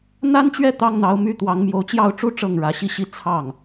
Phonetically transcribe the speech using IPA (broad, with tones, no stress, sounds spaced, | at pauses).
n̪ a˥ n t͡ɕ ɥ ɛ˥˩ t̪ ɑ˥ ŋ n̪ ɑ˧˥ ʊ̯ m y˥ t̪ w ɑ˧˥ ŋ m j o˧˥ ʊ̯ t͡ɕ j ɑ˥˩ ʊ̯ ʈ͡ʂ u˥ ʈ͡ʂ ɤ˥˩ ŋ ɻ ä˧˥ ɕ i˥˧ ɕ i˥˧ t͡sʰ ɑ˥˩ ŋ